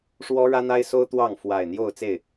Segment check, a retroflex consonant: present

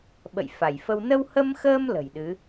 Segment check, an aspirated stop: absent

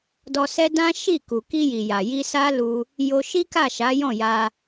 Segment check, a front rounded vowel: absent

